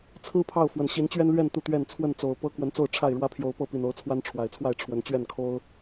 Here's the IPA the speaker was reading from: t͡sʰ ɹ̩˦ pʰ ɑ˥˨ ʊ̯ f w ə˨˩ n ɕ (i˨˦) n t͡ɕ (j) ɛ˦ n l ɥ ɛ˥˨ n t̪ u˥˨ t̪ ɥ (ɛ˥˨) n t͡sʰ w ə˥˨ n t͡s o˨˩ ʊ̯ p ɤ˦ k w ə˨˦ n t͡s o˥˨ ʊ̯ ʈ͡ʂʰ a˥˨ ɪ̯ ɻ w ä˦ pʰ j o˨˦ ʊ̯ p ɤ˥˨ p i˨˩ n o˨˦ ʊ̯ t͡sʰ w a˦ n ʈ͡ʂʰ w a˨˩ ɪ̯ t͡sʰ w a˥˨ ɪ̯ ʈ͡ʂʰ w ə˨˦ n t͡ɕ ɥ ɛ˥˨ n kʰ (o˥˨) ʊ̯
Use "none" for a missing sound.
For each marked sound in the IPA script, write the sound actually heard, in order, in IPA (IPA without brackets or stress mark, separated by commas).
i˨˦, ɥ, ɛ˥˨, o˦